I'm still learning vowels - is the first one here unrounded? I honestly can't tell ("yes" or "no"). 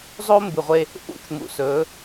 no